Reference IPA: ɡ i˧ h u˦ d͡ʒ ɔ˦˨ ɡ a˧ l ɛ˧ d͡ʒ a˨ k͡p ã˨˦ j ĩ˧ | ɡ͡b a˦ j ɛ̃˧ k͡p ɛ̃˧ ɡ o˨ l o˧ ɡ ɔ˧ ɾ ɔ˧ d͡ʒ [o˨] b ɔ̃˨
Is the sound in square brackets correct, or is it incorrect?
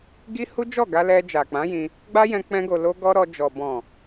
incorrect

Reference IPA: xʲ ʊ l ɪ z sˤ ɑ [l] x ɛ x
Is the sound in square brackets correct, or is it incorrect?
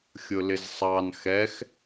incorrect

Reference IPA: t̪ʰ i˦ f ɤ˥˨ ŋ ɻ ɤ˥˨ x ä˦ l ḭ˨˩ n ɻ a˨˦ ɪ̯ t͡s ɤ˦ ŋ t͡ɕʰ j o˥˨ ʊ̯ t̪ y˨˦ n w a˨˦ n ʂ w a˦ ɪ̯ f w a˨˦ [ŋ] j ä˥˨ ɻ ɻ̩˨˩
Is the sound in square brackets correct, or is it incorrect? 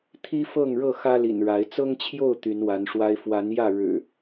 incorrect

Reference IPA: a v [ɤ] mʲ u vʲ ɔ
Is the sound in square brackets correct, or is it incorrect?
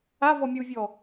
incorrect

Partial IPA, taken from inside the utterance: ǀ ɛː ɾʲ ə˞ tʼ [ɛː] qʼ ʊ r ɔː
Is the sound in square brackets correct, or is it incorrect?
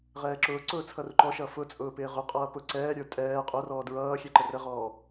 correct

